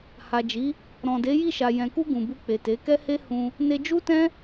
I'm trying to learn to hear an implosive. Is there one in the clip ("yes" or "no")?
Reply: no